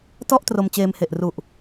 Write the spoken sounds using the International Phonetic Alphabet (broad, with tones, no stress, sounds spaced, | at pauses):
t ɔ˥˩ ʔ t r o˧ m t͡ɕ eː˧ m h e˨˩ ʔ r u˨˩ ʔ